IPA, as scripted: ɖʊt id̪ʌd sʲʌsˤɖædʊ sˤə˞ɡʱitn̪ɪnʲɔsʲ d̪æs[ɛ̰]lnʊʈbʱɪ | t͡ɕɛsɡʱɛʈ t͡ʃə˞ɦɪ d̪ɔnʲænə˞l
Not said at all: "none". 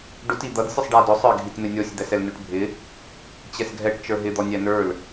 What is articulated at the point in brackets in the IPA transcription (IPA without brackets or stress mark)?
ɛ